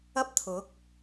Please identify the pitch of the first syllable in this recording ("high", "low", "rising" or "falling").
high